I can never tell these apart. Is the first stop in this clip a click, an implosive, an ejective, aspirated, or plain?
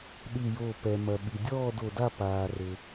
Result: implosive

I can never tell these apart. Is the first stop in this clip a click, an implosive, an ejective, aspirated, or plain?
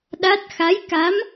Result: implosive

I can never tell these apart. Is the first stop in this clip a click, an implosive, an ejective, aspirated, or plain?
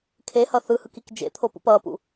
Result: aspirated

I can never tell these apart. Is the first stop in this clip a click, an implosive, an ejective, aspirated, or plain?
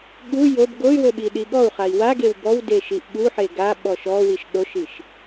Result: implosive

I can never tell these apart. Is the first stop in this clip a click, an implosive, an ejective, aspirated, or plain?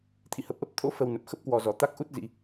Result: aspirated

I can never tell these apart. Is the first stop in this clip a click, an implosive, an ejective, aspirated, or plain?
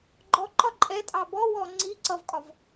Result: click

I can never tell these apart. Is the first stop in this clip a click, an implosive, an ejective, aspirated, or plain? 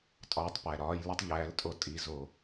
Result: ejective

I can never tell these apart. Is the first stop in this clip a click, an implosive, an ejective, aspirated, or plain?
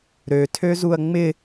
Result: aspirated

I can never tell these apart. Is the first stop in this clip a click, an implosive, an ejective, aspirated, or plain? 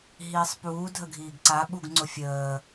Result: plain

